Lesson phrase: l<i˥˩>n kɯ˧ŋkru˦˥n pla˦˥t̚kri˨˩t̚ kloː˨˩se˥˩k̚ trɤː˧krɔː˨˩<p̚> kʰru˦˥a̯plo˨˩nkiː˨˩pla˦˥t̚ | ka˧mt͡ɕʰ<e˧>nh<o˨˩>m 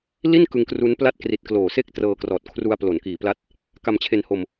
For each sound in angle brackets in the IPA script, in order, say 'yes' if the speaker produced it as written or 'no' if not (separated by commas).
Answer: yes, no, yes, no